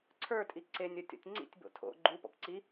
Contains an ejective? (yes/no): yes